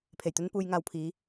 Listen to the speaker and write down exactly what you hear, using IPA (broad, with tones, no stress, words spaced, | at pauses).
pʰe˨˩jt̪ɵ˧npuː˨j ŋaː˨wpʰiː˨˧